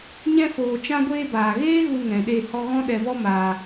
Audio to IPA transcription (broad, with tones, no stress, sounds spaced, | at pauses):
ɲ ɛ̃˧ f oː˨ t͡ʃ ã˧ ɡʷ eː˧ b aː˨ ɣ eː˦ ɣ u˧ ŋ ɛ̃˨ ɗ e˦˨ h ɔ˧ ɣ ɔ̃˦ ɗ ɛ˧ v ɔ˦ m aː˧